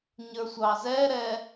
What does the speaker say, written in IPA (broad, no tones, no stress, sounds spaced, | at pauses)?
ɲ ə˞ sʷ ɑ z ɛ ɾ ɛ